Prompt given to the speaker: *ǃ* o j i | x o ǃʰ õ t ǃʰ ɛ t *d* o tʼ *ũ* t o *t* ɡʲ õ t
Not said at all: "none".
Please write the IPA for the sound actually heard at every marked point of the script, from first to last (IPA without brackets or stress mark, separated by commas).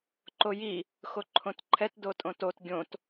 ǃ, d, õ, t